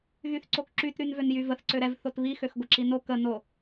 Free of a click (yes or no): no